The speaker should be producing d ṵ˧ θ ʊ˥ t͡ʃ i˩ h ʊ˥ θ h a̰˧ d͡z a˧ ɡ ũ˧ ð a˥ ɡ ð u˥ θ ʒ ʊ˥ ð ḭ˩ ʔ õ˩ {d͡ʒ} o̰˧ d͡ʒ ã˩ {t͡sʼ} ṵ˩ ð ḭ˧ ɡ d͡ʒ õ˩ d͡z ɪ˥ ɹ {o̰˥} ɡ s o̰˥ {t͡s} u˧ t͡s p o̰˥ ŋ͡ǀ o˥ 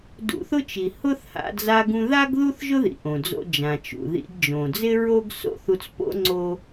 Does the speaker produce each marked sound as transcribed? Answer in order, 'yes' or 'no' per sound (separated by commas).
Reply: no, no, no, no